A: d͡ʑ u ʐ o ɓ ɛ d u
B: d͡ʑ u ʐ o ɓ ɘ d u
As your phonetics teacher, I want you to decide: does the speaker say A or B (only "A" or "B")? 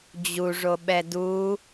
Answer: A